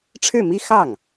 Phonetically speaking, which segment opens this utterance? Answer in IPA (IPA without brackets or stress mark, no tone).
ʈ͡ʂʰ